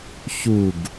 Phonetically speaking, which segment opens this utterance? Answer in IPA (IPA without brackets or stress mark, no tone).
ç